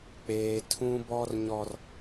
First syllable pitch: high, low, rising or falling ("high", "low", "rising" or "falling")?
high